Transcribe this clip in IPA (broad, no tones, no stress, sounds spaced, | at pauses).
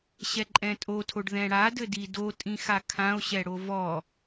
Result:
ɕ ɛ ǃʼ ɛ̃ tʼ o tʰ o ɖ ð ɛ̃ ɽ a d ɘ d i d o tʼ ĩ x a kʰ ã o̯ ɕ ɛ ɽ o v ɔ